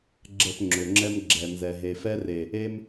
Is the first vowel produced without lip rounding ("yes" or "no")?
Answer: yes